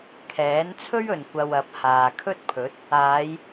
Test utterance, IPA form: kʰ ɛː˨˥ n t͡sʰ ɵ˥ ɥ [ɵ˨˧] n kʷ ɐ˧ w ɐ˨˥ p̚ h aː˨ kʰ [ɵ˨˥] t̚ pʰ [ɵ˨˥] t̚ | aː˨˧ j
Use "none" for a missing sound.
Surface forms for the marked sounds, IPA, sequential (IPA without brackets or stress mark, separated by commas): ɵ˨, ɵ˥, ɵ˨˥